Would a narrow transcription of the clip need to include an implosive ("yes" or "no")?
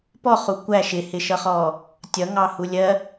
no